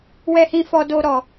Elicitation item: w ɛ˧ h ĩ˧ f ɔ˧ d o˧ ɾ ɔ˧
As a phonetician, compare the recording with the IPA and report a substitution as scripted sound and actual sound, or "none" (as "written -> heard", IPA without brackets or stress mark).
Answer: none